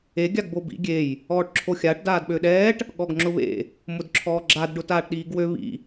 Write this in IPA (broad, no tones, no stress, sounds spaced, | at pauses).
e ɡʲ a ɡ b o b ḭ ɡʲ e j | ɔː ʈ ǁʰ o xʲ a ʈ d aː d ɓ ø ɗ ɛː ʈ | ɠ ɔ ɡ ŋ͡ǁ ʊ β ḛ | m ʊ d ǁʰ ɔː ɡ͡ǁ a d ɖ ʊ t aː ʈ ɗ iː ɡ w ø β ḭ